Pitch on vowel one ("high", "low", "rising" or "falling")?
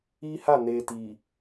high